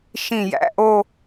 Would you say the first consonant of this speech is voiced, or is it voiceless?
voiceless